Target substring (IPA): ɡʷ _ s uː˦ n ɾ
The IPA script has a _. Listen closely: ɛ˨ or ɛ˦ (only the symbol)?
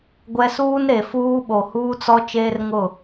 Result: ɛ˦